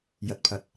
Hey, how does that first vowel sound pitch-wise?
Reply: low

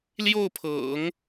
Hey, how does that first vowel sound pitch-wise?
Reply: falling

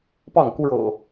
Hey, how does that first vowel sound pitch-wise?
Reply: falling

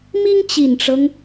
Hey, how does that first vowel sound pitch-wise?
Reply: high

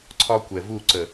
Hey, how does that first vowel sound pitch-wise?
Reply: high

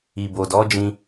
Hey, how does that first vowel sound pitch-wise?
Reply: low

